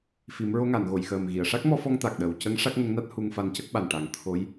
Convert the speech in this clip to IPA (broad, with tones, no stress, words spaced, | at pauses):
fi˨˩˦mɹo˧˥ŋa˨˩˨n ɣo˨˩˨jxəː˨˩mɣi˨˩˨ə̯ ʂa˦˥k̚mɔ˧fɔ˧ŋ t̪a˨˩k̚ɗəː˨˩wcə˧˥ŋ ʂa˦˥k̚ŋə˧˥ŋna˦˥t̚ hu˧ŋfa˧ncə˦˥k̚ ɓa˨˩nʈa˨˩ŋ t̪ʰo˧˥j